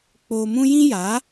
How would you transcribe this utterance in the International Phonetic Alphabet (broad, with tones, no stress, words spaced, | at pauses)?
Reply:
k͡poː˧mũ˦ jĩ˦jaː˨˦